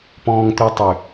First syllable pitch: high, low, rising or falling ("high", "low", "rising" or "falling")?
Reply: low